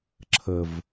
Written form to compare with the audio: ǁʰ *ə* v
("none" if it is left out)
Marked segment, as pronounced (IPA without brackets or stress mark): ə